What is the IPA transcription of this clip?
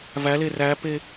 v æ l e r æ p e

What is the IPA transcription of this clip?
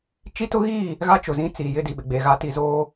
t͡ʃ i˦ t ʊ˦ ɣ iː˦˨ | ɣ a˦ t͡ʃ ʊ˨ z ĩ˦ t͡s iː˨ j ɪ˦ d i˨ ɓ ɪ˨ ɡ͡b e˨ ɣ a˦ t i˨ z oː˦

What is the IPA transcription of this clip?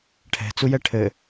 ʈʰ ɛ̤ t͡s u j ɛ ʈʰ ɘ

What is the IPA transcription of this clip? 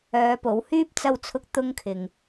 œː˨˧ p o˨˥ w h yː˥ p̚ t͡s ɐ˧ w t͡sʰ ʊ˧ k̚ t̪ ʊ˥ ŋ kʰ ɪ˧ ŋ

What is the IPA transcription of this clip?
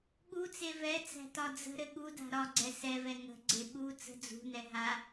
ɠ u t͡s e v ɛ t͡s æ̤ t ɒ d͡z ə̤ ɾ ɘ ɠ u d a̤ ɾ ɒ ɡ͡ǀ ɛ s ɛ v ɛ ŋ ə̤ ɡ͡ǀ e ɓ u t͡s ə̤ d͡z ṳ n ɛ ɦ a

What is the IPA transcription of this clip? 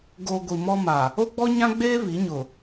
ɡ o˨ ɡʷ i˨ m ɔ˦ m a˨ | o˦ ɡ͡b ɔ˦ ɲ ã˦ ɡ͡b eː˦ β i˨˦ ɲ ʊ˨

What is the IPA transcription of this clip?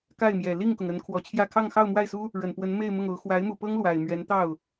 k a˥˩ ɪ̯ m j ɛ˨˩ l i˥˩ ŋ k ʊ˩ ŋ ə˧˥ n kʰ w ɔ˨˩ t͡ɕʰ j ä˥˧ kʰ ɑ˥˧ ŋ x ɑ˥˧ ʊ̯ m w a˥˩ ɪ̯ s u˥ | ɻ ə˨˩ n p w ə˧˥ n m e˥˧ ɪ̯ m ʊ˥˩ ŋ o˧˥ ʊ̯ x w a˧˥ ɪ̯ m u˨˩ p ɤ˥ ŋ l w a˨˩ ɪ̯ m ɥ ɛ˧˥ n t̪ ɑ˥˩ ʊ̯

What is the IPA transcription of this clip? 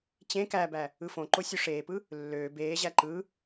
t͡ɕ ẽ k æ b æ | ɯ f õ ǃ o sʲ u ʂ eː p ɯ | lː øː b eː ʑ æ ǃ ɯ

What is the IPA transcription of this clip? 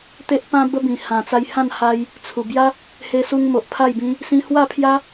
t̪ e˦ ʔ p ã˦ b ə˦ b ĩ˨˩ h ã˨˩ t͡s a˧ j h ã˥˧ n h a˧ j | t͡sʰ u˨˩ b j a˦ | h e˧ s u˧ ŋ m o˨ ʔ pʰ a˥˧ j b ĩ˦ | s ĩ˧ h w a˥˧ pʰ j a˦

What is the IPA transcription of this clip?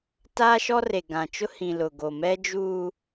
t aː˦ ʃ ɔ˦ r e˨ ɡ ã˨ t͡ʃ ʊ˦ h ĩ˨ l ʊ˨ ɡ o˨ m ɛ˦ d͡ʒ uː˦

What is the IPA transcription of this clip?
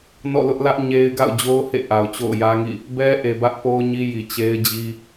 n ɔ̰˦˨ l ʊ˦ ʔ l ä˦ ʔ ɲ e˦ ɪ̯ ɡ a̰˦˨ ʊ̯ d͡ʑ o˦ ʊ̯ h ḛ˦˨ ʔ a˨ ʊ̯ t͡ɕ o̰˦˨ ʊ̯ j ä˦ ŋ ḭ˦˨ | b ɛ˦ ʔ e˨ b ä˦ ʔ p o˦ ʊ̯ ɲ i˦ j i˨ t͡ɕ e˦ ɪ̯ d͡ʑ i˦

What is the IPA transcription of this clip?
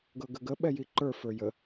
ɡ ɤ ɡ ə ɡ ə ɓ ɛ j i ǃ ə˞ f ə˞ j ə

